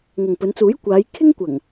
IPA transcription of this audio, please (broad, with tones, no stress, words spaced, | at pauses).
ŋɐ˨ŋpɵ˨˧nt͡suː˨˥jkʷaː˨˧j kʰɪ˥ŋkʷɐ˨˩ŋ